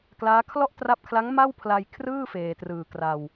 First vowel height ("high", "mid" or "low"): low